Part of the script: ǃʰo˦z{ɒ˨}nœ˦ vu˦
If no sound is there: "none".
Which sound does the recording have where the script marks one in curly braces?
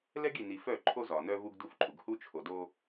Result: ɒ˨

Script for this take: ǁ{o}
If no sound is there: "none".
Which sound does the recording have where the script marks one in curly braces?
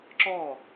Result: ɔ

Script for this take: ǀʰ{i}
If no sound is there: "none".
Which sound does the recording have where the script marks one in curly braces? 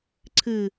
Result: ɨ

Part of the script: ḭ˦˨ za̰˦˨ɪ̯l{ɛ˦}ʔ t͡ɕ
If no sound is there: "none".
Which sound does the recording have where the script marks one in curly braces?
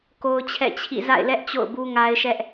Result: ɛ˦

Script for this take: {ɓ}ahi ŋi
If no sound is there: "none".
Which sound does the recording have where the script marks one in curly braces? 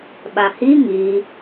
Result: ɓ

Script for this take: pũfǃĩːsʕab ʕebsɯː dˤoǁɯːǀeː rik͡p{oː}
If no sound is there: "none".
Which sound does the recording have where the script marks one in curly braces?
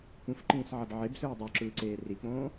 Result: õː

